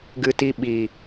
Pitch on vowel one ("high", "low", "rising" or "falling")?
high